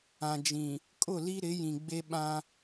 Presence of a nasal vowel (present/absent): present